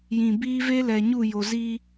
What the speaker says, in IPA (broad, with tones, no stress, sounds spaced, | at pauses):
j ĩ˨ b iː˦ v e˦ l ɛ˨ ɲ u˦˨ j o˨ z i˦